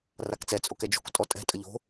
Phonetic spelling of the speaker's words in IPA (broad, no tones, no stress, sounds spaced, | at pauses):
r a k t͡s ɛ t͡sʼ o k ɛ d͡ʒ o̤ k tʼ ɔ tʼ ɛ̤ tʼ ə ʎ o̤